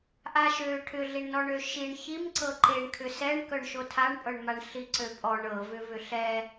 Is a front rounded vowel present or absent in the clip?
present